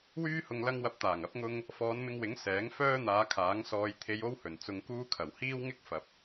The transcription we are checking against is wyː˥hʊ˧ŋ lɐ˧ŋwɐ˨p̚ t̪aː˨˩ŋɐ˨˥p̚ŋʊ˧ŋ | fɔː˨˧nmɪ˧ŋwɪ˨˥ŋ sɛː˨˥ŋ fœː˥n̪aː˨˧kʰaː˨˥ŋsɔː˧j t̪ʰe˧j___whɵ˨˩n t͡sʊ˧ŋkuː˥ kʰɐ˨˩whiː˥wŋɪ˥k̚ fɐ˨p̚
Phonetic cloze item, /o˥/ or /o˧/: o˥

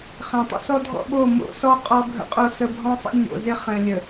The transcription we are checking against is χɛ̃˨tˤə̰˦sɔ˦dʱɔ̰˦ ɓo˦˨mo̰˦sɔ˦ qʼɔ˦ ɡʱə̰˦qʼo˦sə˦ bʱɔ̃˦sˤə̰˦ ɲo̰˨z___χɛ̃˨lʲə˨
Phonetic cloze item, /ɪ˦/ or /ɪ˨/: ɪ˦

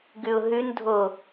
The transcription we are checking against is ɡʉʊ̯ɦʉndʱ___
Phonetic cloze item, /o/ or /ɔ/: o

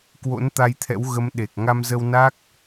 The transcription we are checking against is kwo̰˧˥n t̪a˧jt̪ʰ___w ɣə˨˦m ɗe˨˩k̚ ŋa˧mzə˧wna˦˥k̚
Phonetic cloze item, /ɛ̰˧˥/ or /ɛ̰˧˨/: ɛ̰˧˥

